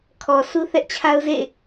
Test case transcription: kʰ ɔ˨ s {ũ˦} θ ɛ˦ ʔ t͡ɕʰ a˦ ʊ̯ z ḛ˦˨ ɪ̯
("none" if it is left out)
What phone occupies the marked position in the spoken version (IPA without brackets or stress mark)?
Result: u˦